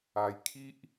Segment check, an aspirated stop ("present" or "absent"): present